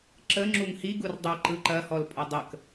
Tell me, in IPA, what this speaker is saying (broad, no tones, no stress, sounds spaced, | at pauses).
ǁ ə ŋ͡ǁ u ŋ h i ɡ u r dˤ ɐ ǃ ɯ ǃ ɐ h ɔ l pʼ ɐ dˤ ə k